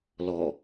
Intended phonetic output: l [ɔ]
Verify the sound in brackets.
correct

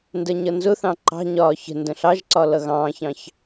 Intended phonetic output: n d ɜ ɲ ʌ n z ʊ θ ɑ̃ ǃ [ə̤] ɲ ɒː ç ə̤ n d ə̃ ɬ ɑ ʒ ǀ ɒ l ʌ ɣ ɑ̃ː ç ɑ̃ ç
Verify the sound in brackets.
incorrect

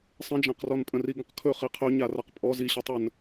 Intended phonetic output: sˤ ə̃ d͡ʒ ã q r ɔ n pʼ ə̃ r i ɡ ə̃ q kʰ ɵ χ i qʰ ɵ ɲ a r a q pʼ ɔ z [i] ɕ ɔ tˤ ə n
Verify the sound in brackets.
correct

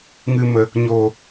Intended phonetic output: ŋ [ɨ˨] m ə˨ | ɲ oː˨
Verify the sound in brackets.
correct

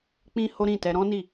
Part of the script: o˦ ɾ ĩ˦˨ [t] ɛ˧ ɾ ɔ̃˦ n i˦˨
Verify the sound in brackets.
correct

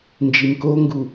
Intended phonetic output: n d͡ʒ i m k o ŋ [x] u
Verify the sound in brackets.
incorrect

